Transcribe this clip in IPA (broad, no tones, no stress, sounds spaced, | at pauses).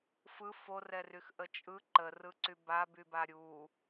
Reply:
f ɯ f o r ɛ r y x ʔ ə t͡ʃʼ ɯ ǃ ə r ɯ ǀ y b a b y b a ɾʲ u